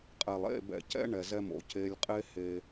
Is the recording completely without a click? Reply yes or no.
yes